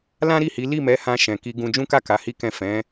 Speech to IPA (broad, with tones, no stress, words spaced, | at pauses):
lã˦ɾi˦˨hi˨˦ li˦˨mɛ˨˦hã˧ ʃɛ̃˨ ki˧ɡũ˧ d͡ʒũ˦ka˦˨ ka˨˦hi˦kɛ̃˦˨ fɛ̃˨˦